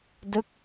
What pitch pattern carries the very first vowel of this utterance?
falling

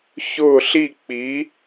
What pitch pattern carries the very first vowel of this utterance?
falling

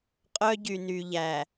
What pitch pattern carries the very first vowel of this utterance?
high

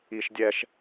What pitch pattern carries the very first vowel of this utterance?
high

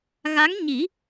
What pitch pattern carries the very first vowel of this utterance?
rising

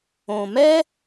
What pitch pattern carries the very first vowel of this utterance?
low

